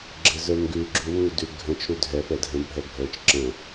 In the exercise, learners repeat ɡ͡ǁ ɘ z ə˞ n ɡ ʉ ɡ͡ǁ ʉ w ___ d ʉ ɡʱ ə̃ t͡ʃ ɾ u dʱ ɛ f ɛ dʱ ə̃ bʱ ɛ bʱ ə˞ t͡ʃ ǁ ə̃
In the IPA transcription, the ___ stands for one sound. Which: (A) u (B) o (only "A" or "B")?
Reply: A